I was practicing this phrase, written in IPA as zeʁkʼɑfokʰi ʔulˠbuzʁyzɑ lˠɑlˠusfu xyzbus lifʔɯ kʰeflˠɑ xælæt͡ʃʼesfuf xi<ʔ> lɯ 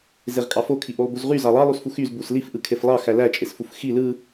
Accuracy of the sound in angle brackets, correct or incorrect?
incorrect: none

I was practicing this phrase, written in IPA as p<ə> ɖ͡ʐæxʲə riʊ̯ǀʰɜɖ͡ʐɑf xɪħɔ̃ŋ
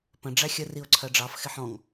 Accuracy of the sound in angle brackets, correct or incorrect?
incorrect: ə̃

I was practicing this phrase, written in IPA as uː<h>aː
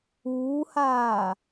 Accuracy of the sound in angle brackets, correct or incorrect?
correct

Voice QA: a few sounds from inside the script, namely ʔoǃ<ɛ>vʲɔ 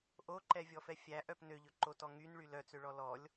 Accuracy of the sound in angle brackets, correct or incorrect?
correct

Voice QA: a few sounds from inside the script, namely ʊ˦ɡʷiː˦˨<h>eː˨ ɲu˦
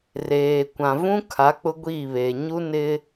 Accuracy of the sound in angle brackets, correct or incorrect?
incorrect: β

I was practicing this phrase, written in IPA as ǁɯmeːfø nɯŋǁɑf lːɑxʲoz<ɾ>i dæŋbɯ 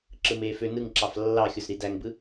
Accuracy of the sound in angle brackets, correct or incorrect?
correct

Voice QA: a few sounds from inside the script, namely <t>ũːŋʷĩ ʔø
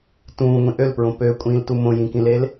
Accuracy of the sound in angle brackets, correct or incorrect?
correct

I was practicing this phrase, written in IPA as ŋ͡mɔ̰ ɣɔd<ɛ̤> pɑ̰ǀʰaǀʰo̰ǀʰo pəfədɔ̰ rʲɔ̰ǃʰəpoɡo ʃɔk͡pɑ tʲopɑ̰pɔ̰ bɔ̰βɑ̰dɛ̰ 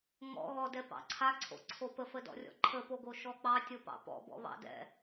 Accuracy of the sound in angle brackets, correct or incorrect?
incorrect: ɛ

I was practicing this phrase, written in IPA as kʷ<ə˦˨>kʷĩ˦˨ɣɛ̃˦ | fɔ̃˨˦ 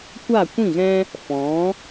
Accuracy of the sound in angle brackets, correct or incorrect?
incorrect: a˦˨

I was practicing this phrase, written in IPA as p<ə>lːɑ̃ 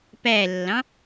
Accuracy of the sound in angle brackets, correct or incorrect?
incorrect: æ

